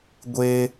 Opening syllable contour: high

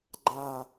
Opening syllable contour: falling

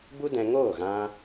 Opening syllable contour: high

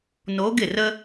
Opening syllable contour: rising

